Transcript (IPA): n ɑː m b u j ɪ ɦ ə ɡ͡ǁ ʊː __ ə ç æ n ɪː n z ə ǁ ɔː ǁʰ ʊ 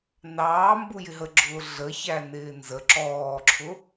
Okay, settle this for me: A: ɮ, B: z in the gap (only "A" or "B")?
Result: A